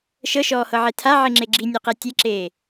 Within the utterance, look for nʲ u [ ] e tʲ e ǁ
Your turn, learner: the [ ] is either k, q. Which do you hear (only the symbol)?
q